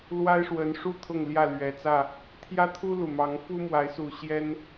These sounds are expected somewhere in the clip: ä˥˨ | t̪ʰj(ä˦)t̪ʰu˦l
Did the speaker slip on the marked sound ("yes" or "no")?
no